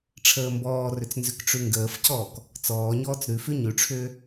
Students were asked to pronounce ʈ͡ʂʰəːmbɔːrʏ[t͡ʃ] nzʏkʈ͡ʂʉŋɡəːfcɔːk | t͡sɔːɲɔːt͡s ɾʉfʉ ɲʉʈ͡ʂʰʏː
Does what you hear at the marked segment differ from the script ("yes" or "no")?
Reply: yes